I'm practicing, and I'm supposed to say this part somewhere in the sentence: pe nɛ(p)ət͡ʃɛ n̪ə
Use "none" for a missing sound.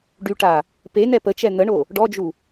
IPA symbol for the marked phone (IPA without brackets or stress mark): p